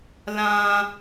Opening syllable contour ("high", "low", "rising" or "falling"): high